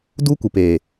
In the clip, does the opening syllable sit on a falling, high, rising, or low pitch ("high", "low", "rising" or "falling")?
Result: high